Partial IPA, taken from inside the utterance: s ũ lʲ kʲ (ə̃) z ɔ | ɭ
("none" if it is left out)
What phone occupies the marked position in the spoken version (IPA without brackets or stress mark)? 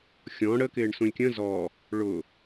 ə̃